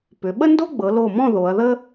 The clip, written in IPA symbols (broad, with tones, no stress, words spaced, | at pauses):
pʏ˩˧ ɓə˥ndo˥ɡ͡bɤ˩˧ lo˧˩mɔ̃˥˧ ðo˩˧ɐ̯ðə˥